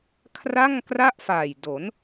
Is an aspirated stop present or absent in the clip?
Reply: present